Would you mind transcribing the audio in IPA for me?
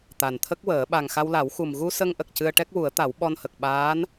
t̪ a˨˩ n t̪ʰ ə˦˥ k̚ w əː˨˩˦ ɓ a˨˩ ŋ x a˧ w l a˨˩˦ w x u˨˩ m ɣ u˧ s ə˧ ŋ ʔ ə˨˩ k̚ c ɨ˧ ə̯ ʈ ɛ˦˥ k̚ w u˨˩˦ ə̯ t̪ a˨˩˦ w ɓ ɔ˧ n h ə˨˩ k̚ ɓ aː˧˥ n

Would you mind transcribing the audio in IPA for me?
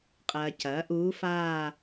qʼ ɐː˨ c ɐː˩˥ ʔ uː˧˥ f aː˥˧

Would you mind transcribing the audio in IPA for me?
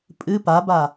pʼ ɨ p a b a

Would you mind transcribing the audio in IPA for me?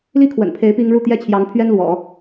l i˥ kʰ w ə̰˨˩ n pʰ e˧˥ ɪ̯ p i˥ ŋ ɻ u˥˩ t̪ j ɛ˥ t͡ɕʰ j ɑ˧˥ ŋ pʰ ɥ ɛ˥ n l w ɔ̰˨˩˦

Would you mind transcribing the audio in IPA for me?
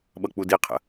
ɓ ʌ k͡p u d i qʰ ə̰

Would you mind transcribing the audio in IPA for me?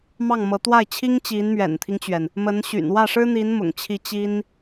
m ɑ˥˩ ŋ m ɤ˧˥ t̪ w a˥˩ ɪ̯ t͡ɕʰ i˥ ŋ t͡ɕ i˧˥ n m ɥ ɛ̰˨˩ n t̪ʰ i˦ ŋ t͡ɕ ɥ ɛ˩ n | m ə˧˥ n ɕ y̰˨˩ n w ä˥˩ ʂ ɻ̩˥ n̪ i˧˥ n m ʊ̰˨˩ ŋ t͡ɕʰ i˧˥ t͡ɕ i˥ n

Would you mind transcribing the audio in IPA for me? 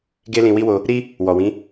ɡ e˦ l ĩ˧ w i˦ w o˧ | ɾ i˦ | w ɔ˨ w ĩ˨˦

